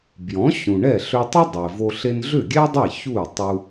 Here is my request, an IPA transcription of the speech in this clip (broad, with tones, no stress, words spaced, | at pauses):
bjɔ̃˩˥ ɕũ˩ɳɛ˥˩ ɬʏ˧tˤʏ˥ dˤe˩vo˧ ɬe˧nɮʏ˥˩ɡʲɛ˥dˤɛ˥˩ çu˥˩y̯ tˤu˧